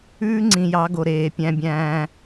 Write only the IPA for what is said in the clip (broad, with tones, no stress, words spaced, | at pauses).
ʉː˦ŋ͡ǀĩ˨jɑ˨˦ ɡo˨ɾeː˨pʲæ̃˦bʲæ̃ː˦